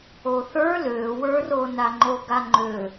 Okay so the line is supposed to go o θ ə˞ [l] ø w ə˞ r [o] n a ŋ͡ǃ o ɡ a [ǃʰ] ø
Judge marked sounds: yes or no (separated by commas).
yes, yes, no